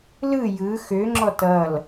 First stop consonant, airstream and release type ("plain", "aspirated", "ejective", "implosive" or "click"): click